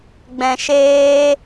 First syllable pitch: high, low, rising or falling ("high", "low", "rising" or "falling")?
low